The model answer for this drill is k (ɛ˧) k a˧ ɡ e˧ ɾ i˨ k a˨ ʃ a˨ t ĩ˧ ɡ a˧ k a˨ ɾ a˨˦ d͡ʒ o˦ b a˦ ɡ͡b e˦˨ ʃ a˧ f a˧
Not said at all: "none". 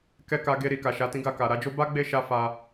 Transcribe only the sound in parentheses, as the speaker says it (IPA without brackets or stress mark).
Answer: ɛ˧